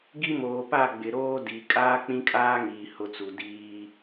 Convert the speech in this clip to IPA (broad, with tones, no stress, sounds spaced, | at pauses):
ɡ i˦ m oː˨ p a˦˨ ɡ͡b ɪ˨ ɾ oː˦ d i˨ kʼ aː˦ k͡p ĩ˦ kʼ aː˦ ŋ iː˨ h ʊ˦ t͡s u˨ d iː˦